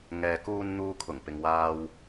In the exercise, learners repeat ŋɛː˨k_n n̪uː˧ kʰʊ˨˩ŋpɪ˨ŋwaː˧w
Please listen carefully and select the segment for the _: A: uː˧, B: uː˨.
A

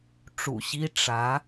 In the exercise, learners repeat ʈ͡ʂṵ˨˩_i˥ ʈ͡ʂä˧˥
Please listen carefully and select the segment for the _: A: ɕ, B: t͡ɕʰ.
A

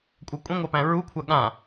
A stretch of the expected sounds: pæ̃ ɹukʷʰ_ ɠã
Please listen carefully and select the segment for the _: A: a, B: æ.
A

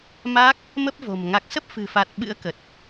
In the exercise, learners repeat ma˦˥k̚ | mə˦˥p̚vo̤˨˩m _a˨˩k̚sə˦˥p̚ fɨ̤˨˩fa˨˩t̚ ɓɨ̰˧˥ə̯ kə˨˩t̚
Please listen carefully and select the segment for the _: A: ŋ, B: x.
A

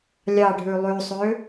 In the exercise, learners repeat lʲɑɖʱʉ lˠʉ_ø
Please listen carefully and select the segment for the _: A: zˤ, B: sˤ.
B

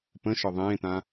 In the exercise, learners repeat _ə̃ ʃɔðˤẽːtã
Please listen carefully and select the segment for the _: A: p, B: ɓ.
A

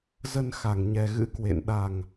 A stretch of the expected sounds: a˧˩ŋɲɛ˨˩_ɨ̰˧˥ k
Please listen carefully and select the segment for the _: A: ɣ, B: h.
A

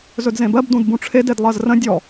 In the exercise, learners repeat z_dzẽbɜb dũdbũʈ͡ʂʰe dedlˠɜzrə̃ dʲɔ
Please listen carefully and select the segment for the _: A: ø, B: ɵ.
B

